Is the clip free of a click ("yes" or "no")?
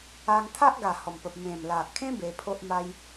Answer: yes